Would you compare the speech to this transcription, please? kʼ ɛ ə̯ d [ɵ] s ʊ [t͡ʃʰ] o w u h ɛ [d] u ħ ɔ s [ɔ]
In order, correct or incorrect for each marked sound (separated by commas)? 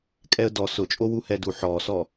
incorrect, incorrect, correct, correct